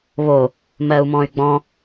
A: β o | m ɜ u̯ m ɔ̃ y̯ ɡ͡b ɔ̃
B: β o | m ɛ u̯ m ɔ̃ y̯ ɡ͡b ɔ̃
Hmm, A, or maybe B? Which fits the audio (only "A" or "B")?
A